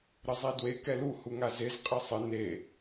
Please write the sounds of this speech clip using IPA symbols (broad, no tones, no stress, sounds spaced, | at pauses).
ɾ ɘ zˤ i d w e k ɛ l u h u ŋ a z e z qʼ ɘ sˤ ɘ n e